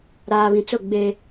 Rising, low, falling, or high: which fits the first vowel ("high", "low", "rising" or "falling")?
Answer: low